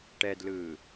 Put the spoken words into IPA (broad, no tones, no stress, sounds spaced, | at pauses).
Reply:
ʈ ɛ d l ɯː